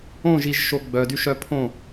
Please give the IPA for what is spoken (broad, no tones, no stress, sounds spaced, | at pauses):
õ ʒ i ʒ ʃ o ɡ͡b œ d y ʃ œ pʰ õ